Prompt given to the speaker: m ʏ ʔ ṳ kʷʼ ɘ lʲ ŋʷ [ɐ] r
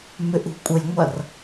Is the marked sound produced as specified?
yes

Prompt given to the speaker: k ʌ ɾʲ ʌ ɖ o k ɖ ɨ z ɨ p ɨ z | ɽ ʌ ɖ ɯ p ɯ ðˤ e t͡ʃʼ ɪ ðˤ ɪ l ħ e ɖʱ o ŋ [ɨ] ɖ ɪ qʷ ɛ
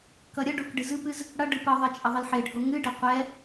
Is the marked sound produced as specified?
yes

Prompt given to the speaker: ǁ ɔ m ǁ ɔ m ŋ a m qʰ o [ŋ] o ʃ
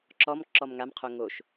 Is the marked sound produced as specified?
yes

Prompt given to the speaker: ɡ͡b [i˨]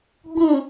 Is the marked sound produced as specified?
no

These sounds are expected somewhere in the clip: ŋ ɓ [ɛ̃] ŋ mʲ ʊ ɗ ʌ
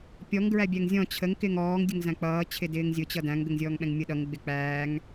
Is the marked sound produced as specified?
yes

